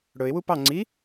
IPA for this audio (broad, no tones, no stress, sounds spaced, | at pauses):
ɽ ɵ ɪ̯ w u p ɑ ŋ͡ǀ i